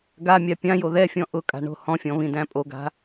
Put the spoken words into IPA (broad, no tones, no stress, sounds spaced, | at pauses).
ɡ a mʲ a pʲ ã j o ð ɛ fʲ ɔ̃ ʔ ʊ kʼ a̤ ɳ o̤ h ɔ̃ fʲ ɔ̃ β ĩ d æ̃ pʼ o ɡ a̤